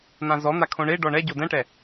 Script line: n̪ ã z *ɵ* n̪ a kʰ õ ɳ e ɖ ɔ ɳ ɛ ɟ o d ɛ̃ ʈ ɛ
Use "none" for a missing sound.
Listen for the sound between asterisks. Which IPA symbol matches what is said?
ɔ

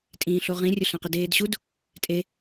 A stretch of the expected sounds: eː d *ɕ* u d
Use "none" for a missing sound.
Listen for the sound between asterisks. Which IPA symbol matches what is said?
ɕ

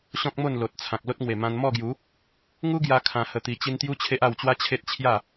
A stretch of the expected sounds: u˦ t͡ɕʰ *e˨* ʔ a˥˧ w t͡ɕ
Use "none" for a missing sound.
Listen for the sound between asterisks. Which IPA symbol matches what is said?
e˦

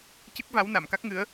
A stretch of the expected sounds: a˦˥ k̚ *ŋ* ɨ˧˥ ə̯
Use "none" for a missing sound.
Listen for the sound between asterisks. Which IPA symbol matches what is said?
ŋ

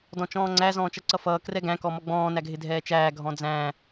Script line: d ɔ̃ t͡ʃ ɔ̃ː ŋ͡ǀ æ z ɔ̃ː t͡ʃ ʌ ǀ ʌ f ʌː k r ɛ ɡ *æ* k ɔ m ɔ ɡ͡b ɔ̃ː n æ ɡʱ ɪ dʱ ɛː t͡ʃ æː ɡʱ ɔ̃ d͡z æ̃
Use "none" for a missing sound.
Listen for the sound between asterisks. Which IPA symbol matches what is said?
æ̃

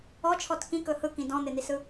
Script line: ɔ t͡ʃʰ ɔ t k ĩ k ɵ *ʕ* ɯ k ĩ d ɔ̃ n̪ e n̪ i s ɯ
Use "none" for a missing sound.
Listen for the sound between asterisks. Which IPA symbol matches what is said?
h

